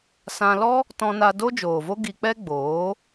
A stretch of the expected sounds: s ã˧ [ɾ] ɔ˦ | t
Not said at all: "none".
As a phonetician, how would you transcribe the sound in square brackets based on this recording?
l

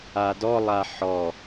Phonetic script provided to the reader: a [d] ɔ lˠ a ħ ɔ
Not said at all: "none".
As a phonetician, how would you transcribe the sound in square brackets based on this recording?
d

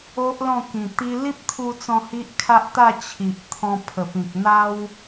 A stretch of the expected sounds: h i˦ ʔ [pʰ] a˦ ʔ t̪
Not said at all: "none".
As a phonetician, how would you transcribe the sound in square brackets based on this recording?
kʰ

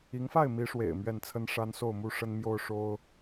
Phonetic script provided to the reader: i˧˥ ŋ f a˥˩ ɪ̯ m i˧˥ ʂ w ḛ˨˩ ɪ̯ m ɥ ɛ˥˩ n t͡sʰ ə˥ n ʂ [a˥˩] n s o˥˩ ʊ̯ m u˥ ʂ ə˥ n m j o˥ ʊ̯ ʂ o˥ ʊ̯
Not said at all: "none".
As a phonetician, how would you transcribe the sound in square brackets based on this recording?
a˥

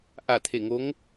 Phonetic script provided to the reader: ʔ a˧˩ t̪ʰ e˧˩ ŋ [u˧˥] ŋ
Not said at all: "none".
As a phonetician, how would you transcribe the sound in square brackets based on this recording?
o˧˥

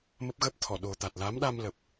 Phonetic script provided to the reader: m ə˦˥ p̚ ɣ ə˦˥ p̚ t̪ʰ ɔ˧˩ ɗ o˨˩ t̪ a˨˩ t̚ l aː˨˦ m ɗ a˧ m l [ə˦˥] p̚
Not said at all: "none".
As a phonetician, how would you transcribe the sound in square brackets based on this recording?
ə˨˩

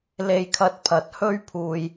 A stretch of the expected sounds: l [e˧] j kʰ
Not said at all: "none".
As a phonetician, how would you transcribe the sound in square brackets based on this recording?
e˧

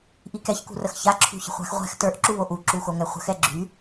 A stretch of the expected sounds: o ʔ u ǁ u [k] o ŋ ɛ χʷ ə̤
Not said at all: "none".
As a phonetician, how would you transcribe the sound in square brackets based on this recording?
x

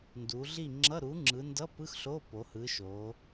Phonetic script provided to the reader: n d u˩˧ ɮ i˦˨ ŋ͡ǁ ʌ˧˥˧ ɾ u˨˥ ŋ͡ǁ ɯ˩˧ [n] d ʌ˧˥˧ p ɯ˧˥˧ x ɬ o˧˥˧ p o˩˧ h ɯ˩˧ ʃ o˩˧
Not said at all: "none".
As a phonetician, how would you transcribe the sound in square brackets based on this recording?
n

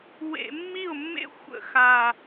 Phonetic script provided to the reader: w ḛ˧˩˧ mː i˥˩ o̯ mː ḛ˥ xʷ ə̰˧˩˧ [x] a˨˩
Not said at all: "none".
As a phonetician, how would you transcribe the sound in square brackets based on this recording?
x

